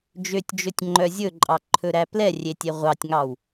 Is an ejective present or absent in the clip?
present